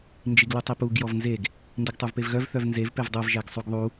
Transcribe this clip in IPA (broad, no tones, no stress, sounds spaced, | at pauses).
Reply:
n d͡ʒ i ɡ l u tˤ i p u ɡ j ɔ v n z e ɡ | n d i ɡ tˤ u v p e v ɣ œ v θ œ v n z e v p e v dˤ œ v ʒ æ ɡ sˤ u ɡ ðˤ u